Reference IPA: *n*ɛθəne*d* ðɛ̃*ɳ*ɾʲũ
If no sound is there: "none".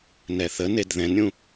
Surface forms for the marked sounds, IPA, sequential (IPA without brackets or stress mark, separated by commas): n, d, n